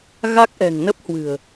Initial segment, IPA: ɣ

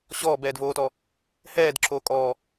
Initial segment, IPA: ɕ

